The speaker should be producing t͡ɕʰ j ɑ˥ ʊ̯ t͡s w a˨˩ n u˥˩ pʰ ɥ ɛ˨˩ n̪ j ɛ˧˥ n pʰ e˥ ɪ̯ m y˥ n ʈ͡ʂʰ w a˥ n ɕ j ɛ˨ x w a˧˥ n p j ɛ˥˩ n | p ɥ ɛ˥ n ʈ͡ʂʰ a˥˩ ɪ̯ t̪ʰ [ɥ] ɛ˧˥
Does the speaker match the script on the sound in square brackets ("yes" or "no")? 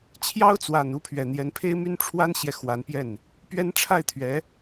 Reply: yes